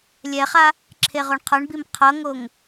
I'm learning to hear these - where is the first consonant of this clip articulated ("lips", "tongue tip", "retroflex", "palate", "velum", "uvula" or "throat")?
tongue tip